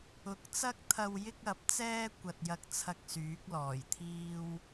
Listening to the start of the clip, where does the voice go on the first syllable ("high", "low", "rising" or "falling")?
rising